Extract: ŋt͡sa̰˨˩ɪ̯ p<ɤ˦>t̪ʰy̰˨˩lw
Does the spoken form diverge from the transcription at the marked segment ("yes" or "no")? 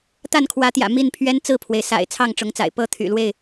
no